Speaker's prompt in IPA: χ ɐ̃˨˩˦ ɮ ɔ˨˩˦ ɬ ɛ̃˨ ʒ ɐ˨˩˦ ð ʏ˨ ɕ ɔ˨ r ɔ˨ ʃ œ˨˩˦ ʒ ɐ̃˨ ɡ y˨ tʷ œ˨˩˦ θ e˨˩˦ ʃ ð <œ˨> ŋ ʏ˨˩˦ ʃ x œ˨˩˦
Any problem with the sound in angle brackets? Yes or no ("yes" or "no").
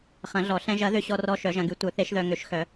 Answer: no